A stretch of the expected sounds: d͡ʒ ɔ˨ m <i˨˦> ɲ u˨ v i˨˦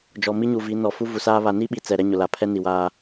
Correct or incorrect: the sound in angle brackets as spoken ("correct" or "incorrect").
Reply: incorrect